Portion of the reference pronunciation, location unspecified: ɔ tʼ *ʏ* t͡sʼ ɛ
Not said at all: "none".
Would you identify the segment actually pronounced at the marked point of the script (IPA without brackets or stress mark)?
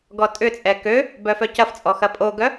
ʏ